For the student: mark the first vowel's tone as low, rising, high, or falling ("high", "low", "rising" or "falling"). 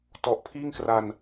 low